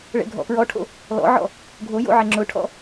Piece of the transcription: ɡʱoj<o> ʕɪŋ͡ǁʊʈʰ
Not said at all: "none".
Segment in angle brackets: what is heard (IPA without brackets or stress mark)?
o̰